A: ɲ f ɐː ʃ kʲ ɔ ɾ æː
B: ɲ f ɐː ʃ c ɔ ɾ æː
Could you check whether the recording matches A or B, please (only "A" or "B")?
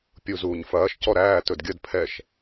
B